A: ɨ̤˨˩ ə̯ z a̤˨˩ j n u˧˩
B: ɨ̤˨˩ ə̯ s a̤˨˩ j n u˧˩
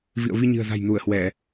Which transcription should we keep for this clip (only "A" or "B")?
A